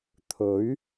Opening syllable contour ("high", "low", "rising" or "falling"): rising